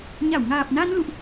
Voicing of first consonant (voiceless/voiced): voiced